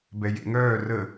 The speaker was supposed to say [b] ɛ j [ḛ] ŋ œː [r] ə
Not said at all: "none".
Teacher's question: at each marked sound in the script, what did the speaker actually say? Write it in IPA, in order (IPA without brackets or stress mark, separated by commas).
b, ḛ, r